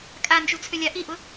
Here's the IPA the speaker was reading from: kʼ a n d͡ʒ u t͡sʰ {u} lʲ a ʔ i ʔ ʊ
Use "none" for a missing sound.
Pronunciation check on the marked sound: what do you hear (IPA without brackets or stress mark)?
ʏ